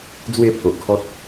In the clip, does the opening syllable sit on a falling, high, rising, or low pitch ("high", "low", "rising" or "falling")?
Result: falling